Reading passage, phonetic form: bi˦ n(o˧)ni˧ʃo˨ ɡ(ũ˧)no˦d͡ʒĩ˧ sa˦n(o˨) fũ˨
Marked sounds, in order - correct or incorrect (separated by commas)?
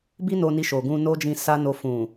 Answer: correct, correct, incorrect